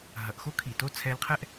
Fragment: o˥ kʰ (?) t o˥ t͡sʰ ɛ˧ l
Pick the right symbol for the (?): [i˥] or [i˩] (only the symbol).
i˩